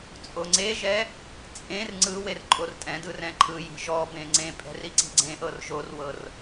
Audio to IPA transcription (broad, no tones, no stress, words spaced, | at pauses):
t͡sʼoŋ͡ǀeʒɛ | t͡sʼẽr ŋ͡ǀɯ werǃʼortʼɛ̃dɯ rɛ̃ǃʰɯji̤ ʒɔbẽ ŋ͡ǀẽpʼɛ̤r iǀi̤ɡ͡ǀẽʔɤr ʒorwɤr